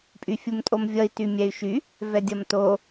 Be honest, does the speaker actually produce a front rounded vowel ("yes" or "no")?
yes